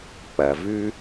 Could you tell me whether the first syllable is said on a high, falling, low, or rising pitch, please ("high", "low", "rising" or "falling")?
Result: low